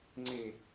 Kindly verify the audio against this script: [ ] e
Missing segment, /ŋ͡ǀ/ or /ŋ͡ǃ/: ŋ͡ǀ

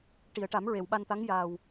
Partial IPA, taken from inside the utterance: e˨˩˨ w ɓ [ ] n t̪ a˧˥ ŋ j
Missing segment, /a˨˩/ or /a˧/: a˧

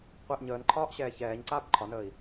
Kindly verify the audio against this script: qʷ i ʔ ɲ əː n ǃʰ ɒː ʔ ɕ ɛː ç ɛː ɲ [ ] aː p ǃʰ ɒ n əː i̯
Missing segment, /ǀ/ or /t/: ǀ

